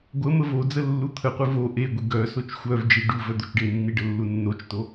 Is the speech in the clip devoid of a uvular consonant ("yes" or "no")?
no